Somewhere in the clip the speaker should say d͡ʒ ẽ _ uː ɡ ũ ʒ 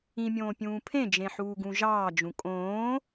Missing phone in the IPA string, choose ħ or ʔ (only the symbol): ħ